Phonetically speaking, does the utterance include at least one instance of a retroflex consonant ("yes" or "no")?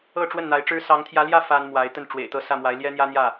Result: yes